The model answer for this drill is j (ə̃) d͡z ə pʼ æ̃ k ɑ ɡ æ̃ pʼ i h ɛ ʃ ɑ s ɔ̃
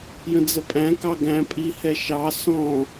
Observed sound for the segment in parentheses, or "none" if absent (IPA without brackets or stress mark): ə̃